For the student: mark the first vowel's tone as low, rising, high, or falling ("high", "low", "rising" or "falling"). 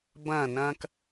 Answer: falling